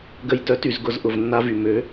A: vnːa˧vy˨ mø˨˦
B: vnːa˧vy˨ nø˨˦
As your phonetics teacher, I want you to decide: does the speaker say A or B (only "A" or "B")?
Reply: A